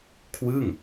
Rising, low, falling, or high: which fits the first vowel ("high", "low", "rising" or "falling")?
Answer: falling